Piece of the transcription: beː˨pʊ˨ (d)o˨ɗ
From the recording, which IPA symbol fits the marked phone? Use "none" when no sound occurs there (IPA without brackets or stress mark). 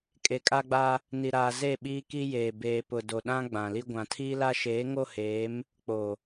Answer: d